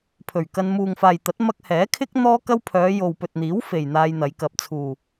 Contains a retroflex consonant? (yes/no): no